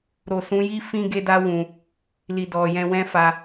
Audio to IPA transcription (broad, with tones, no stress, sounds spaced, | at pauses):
ɾ o˨ s ũ˨˦ j i˦ f ĩ˦ ɡ e˦ d a˦ w ũ˧ | l i˨ d ɔ˨ j ɛ̃˧ w ɛ̃˦ f a˧